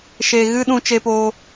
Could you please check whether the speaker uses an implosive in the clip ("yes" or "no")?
yes